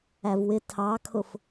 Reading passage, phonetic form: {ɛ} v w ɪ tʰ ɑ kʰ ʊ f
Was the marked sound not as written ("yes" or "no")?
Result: yes